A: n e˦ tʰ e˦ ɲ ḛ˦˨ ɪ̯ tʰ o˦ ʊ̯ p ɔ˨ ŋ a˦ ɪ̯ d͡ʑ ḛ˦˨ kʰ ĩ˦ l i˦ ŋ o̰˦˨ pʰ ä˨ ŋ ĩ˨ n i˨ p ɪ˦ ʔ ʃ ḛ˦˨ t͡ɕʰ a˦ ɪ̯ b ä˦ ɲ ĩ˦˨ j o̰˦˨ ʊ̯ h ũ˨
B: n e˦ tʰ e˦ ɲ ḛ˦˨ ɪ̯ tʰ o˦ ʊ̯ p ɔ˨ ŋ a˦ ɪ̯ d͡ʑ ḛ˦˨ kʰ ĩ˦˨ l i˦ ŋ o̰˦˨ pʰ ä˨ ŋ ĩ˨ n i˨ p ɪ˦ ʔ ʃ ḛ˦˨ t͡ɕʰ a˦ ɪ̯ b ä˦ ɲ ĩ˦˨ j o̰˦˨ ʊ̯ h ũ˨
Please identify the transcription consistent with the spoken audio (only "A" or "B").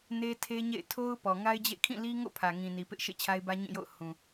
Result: B